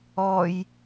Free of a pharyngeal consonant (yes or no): yes